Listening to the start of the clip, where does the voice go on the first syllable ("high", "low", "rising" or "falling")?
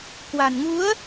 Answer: low